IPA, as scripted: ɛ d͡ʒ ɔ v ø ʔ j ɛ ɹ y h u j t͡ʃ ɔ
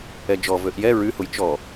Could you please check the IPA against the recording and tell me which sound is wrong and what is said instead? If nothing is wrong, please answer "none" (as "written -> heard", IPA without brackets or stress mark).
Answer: none